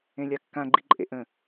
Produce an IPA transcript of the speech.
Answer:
ẽ lʲ a kː ã ɡ͡ǃ i ǃʼ ḛ ʔ ə̃

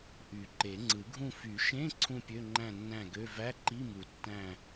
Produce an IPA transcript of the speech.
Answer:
ʔ y˨˩˦ ǃ e˨˩˦ ŋ͡ǀ ɯ˨˩˦ ɡʱ ũ˥˨ f y˨˩˦ ʃ ẽ˧˥˧ ǀʰ ũ˥˨ pʲ ø˧˥˧ ŋ͡ǃ æ̃˥˨ nː æ̃˥˨ ɡ ø˧˥˧ v æ˧˥˧ ǃ i˧˥˧ m u˨˩˦ tː æ̃˥˨

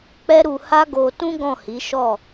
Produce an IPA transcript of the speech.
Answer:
k͡p ɛ˦ ɾ u˧ h a˦ ɡ o˧ t ũ˦ ɡ ɔ̃˦˨ h i˨˦ ʃ ɔ˦˨

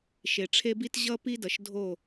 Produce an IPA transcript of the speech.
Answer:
ʃ e˨ ʈ͡ʂʰ e˦ b i˦ t ʑ ʌ˦ p i˦ d ʌ˨ ʃ dʱ o˦˨

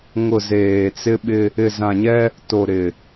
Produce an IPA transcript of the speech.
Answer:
ŋ ʊ˨ z eː˨ t͡s ɪ˦ ɓ ɪ˦ | ɪ˨ z ã˨ ɲ ɛ˦ | t o˨ ɾ ɪ˨

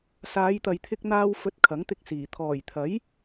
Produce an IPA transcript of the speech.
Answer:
s aː˨˧ j t̪ ɐ˨ j t̪ʰ ɪ˧ k̚ n̪ aː˧ w f ɵ˧ t̚ kʰ ɐ˨˥ ŋ t̪ ɪ˧ k̚ s iː˨˩ t̪ʰ ɔː˨˩ j t̪ʰ ɐ˨˥ j

